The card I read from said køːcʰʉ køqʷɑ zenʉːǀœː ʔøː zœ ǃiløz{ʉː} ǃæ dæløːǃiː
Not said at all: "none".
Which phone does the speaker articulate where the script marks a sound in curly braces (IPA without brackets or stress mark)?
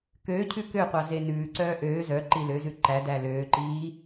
ʉ